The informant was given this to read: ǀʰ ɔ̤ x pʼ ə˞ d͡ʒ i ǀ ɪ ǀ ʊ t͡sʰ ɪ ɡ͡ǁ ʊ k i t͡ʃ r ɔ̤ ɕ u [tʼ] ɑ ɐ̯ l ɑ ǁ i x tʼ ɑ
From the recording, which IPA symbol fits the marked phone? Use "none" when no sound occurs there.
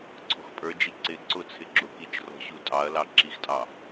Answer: tʼ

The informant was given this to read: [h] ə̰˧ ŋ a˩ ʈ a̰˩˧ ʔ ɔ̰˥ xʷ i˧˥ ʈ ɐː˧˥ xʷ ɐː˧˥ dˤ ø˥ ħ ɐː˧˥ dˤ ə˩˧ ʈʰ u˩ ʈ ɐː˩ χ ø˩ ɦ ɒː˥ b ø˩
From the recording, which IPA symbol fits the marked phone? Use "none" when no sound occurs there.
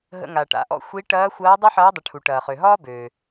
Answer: ɦ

